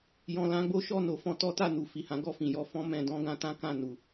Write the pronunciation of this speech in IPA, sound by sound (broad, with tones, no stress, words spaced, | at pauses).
jɔ̃˨lã˧ɡ͡bo˦ʃɔ˦˨ no˨˦fɔ̃˧tɔ˦ta˦˨ nu˨ fi˨hã˨˦ ɡɔ˦˨fĩ˨jɔ˧ fɔ̃˦mɛ̃˧ dɔ̃˦ɡã˧tã˦kã˦˨ nu˧